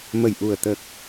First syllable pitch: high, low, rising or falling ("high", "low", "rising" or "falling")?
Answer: low